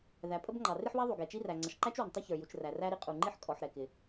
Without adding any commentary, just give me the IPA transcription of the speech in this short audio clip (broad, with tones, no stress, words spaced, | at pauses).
ðæ˩pʼə˥bŋ͡ǃɑ˩ rɪ˥ħwɛ˥ðˤu˩ ɡɛ˩t͡ʃi˥ræ˩ ŋ͡ǀʌ˩ʃǃæ˥t͡ʃwɪ˩n tˤʌ˥çə˞˩ju˩t͡ʃ ræ˩ræ˥ ɾi˥qʼu˩ ŋ͡ǃi˥ħ kʼɔ˩ħ ɾɛ˩kɪ˩